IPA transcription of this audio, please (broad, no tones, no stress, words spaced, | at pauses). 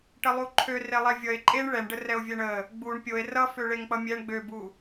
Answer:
ʈəlˠuǃʰø relˠɛvʲʌe̯ ǃʼeɳ ɭɛɳɖərɛo̯ vʲɛɳə | ɡ͡buɳ pʲoe̯ rʌfø ɭeŋk͡pʌmʲɛɳ ɡ͡bøbu